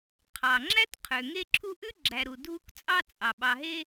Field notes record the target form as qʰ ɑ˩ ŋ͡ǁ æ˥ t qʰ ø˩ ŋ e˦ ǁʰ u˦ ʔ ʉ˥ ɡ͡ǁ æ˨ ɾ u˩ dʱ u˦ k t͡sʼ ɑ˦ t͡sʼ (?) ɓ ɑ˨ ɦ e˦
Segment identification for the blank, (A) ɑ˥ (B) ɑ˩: B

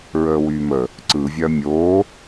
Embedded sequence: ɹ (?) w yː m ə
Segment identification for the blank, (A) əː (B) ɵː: A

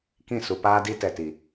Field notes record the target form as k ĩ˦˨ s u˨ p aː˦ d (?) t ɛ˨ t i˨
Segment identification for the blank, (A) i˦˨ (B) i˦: B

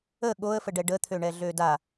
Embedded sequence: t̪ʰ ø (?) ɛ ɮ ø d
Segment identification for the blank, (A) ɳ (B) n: A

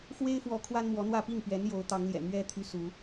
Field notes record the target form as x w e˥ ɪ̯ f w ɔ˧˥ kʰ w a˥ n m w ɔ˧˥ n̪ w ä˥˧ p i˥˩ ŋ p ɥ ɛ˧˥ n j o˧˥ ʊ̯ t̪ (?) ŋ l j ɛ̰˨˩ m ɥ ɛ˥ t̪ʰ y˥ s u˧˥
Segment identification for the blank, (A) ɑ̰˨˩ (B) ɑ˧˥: B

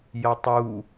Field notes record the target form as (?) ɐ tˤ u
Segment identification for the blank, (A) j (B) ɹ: A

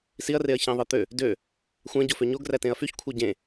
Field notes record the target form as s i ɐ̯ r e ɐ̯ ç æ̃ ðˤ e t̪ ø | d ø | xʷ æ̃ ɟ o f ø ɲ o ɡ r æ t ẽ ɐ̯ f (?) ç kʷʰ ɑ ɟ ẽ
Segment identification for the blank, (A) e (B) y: B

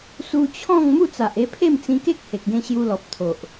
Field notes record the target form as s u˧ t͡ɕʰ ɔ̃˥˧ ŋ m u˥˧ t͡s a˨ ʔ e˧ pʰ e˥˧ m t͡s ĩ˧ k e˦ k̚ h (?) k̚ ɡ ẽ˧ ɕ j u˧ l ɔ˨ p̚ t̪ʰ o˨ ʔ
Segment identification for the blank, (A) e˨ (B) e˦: A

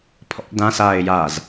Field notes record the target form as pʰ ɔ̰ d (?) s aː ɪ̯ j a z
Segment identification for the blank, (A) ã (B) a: A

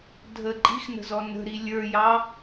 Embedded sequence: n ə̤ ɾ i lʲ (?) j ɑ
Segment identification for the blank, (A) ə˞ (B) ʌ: A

